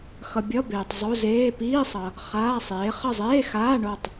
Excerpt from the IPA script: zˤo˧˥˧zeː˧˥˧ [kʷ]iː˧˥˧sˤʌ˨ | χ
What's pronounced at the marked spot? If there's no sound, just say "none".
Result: p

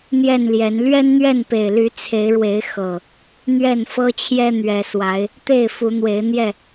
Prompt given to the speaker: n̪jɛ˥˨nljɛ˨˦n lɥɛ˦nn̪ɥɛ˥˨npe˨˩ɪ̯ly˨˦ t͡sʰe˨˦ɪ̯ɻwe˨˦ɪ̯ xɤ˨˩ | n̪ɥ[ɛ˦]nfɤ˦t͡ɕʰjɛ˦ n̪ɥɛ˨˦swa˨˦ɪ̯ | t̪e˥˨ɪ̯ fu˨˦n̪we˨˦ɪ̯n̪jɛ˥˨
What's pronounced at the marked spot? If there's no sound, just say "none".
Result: ɛ˥˨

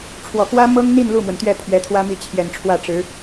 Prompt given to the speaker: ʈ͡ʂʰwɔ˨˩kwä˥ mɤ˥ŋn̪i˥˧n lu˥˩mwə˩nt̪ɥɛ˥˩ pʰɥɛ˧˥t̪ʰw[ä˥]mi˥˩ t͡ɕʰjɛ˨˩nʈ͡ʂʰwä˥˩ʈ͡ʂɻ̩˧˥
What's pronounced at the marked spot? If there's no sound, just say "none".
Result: ä˥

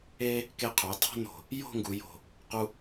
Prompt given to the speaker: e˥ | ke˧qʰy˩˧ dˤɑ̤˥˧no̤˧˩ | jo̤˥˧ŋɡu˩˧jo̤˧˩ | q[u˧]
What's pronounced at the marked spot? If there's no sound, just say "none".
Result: u˥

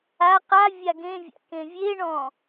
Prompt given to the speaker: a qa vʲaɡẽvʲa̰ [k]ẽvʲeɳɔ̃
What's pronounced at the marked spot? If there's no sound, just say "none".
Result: k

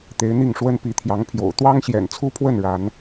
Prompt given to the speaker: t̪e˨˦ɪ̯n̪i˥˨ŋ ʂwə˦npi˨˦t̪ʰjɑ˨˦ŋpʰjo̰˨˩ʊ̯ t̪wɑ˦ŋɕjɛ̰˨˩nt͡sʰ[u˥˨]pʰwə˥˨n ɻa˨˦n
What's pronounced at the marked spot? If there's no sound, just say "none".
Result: u˦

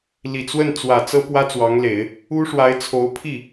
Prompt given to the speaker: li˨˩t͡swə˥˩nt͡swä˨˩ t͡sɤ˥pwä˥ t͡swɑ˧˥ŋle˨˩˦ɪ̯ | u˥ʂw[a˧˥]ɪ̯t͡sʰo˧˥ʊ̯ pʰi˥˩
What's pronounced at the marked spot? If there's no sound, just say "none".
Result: a˧˥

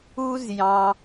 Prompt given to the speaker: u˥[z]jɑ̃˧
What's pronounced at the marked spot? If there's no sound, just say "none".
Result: z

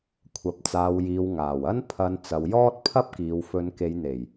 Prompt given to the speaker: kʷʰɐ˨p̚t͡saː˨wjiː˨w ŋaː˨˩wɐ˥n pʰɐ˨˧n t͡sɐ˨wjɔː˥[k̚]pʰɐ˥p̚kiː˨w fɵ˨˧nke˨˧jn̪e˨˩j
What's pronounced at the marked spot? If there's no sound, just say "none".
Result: t̚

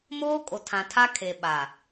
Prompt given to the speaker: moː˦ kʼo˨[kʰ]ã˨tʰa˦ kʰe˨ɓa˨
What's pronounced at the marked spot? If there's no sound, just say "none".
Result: tʰ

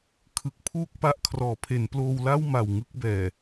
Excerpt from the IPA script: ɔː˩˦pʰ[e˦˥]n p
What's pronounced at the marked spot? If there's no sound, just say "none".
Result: e˩˦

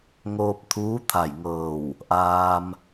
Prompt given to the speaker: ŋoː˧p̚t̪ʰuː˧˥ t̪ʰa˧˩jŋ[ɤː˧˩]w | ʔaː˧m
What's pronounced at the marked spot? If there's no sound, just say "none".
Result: ɤː˧˩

